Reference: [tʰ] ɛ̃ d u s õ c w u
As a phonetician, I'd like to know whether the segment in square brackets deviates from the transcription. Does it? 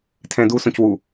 no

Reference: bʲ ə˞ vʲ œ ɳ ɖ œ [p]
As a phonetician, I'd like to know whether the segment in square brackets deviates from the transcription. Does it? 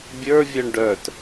yes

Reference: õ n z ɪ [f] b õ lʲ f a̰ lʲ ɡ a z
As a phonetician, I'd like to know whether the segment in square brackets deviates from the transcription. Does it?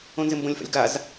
yes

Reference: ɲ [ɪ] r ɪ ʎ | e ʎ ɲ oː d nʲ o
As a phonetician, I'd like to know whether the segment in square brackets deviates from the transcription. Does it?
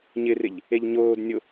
no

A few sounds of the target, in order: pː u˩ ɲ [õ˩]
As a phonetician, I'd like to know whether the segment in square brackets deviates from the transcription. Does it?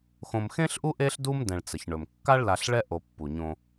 yes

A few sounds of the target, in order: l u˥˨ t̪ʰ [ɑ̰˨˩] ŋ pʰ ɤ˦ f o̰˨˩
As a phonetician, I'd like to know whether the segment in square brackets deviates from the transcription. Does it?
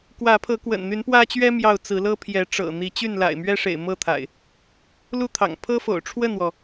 no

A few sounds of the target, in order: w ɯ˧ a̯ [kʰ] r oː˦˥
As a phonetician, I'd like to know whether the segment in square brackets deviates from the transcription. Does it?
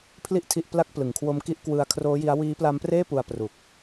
no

